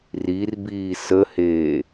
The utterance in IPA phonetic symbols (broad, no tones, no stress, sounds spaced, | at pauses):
r i r b iː s ə h eː